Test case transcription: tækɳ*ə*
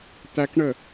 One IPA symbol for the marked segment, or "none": ə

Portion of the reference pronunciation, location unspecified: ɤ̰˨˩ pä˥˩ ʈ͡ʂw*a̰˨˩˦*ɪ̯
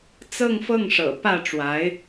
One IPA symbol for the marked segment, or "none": a˧˥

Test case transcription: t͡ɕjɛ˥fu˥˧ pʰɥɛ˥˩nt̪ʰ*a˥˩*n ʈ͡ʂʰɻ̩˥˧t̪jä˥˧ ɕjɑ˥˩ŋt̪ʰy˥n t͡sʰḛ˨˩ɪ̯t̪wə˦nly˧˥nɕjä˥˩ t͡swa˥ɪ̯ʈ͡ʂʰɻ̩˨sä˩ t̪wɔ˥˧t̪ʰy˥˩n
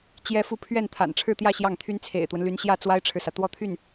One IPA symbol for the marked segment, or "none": a̰˨˩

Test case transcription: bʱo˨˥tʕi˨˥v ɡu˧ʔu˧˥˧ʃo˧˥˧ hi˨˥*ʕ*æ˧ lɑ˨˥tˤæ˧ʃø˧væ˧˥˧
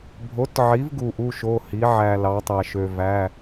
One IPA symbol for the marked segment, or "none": ʕ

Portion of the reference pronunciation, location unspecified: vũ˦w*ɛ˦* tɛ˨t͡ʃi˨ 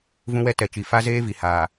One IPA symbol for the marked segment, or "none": ɛ˦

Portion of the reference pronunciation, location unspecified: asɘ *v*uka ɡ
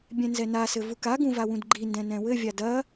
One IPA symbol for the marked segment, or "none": v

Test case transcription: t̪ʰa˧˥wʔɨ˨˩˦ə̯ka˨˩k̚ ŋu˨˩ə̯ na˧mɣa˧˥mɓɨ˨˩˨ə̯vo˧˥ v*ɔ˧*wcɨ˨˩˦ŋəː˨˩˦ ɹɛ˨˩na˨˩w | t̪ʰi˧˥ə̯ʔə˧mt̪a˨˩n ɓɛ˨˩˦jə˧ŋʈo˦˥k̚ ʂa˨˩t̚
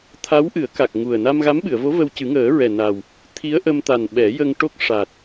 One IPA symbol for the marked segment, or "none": ə˧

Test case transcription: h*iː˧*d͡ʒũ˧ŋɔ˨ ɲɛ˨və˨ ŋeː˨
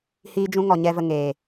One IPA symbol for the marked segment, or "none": iː˧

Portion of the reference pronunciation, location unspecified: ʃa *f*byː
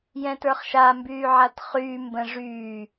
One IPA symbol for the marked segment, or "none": m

